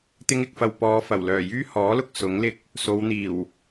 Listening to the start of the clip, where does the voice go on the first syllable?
high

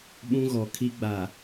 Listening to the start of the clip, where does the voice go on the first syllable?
high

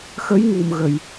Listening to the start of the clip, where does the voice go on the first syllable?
rising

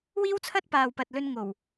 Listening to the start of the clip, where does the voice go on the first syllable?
high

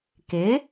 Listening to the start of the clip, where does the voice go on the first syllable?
rising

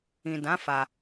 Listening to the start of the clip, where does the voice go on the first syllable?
low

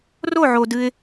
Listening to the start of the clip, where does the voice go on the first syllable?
falling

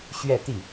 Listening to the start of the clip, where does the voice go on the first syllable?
falling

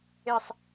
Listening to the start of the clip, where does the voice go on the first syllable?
falling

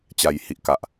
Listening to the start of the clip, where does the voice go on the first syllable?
low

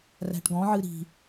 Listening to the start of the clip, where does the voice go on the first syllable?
low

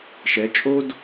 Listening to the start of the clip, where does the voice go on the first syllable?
rising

